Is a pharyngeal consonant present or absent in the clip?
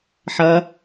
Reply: present